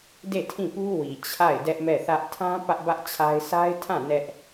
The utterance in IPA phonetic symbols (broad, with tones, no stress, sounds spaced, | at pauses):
d e˦˨ tʰ ĩ˦˨ p u˦ w i˨ t͡ɕʰ a˦˨ ɪ̯ d ɛ˦ ʔ m ɛ˦˨ θ ä˦ ʔ tʰ ã˦ p ä˦ ʔ b ä˦ ʔ t͡ɕʰ a˦ ɪ̯ sʰ a˦ ɪ̯ tʰ ã˦˨ n ɛ˦ ʔ